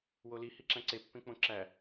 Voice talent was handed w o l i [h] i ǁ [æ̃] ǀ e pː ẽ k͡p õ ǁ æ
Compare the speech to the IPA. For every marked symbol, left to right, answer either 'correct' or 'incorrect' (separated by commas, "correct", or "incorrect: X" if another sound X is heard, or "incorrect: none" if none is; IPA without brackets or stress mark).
correct, correct